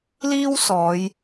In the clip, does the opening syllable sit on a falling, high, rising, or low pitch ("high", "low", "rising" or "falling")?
high